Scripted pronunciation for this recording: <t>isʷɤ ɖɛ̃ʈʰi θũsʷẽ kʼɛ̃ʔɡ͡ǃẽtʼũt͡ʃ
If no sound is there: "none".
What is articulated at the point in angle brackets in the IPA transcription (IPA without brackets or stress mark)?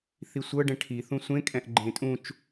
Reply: θ